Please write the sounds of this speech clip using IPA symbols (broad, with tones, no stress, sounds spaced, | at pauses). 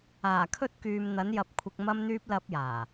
aː˨˩ kʰ ɵ˧ t̚ k yː˨ m n̪ ɐ˨˧ n j ɐ˨ p̚ kʷʰ ɪ˨ k̚ m ɐ˧ m n̪ yː˧ p̚ l ɐ˧ p̚ j aː˨˩